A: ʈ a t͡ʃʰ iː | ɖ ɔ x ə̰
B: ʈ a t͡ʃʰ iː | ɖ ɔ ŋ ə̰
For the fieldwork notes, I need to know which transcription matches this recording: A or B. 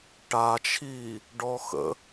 A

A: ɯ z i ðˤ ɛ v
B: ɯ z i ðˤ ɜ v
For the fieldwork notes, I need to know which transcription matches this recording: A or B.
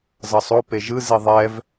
A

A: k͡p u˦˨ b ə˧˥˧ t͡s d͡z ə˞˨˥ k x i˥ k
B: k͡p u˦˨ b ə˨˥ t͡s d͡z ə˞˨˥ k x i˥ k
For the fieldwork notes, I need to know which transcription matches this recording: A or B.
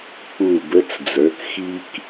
A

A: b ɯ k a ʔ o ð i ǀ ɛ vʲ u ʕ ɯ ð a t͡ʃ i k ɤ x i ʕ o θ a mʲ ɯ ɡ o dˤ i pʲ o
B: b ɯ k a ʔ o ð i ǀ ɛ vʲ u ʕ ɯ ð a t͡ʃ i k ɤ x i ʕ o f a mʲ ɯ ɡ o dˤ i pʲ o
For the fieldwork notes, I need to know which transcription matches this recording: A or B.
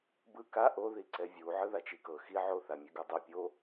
A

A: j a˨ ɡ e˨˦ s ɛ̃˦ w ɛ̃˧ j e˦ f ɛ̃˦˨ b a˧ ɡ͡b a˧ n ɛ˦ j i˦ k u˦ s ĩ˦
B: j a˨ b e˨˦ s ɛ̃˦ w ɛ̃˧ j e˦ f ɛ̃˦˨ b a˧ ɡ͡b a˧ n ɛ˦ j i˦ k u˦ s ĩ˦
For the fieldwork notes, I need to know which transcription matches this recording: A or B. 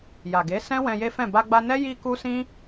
A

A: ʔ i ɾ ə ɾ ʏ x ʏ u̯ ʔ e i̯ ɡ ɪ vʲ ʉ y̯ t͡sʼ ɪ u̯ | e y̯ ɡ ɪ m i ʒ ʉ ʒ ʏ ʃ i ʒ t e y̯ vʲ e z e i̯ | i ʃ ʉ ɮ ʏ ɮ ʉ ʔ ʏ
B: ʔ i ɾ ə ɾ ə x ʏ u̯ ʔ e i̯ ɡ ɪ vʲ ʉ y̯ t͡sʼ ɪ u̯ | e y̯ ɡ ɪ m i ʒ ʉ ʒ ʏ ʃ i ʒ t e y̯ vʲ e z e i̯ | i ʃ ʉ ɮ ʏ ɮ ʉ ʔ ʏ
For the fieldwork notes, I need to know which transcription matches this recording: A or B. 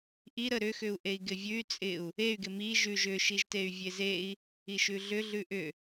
A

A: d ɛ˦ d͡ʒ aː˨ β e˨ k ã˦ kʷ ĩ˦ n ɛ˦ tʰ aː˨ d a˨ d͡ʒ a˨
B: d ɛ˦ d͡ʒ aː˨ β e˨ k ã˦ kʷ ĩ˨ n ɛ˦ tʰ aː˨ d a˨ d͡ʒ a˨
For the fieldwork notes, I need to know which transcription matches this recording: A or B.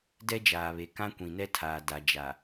B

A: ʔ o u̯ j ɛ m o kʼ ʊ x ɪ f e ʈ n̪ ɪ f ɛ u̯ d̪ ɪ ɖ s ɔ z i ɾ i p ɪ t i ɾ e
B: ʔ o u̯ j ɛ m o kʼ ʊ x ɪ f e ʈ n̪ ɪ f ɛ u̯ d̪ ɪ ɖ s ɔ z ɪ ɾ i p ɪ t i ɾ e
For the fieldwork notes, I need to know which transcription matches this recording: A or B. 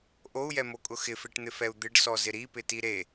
B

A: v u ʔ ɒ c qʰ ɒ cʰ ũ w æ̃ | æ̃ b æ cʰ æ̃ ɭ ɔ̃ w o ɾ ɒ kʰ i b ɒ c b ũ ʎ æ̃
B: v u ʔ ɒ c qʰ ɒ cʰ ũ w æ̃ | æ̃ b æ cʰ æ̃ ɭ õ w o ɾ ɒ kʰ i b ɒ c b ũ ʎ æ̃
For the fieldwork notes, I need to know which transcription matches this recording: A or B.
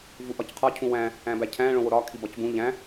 B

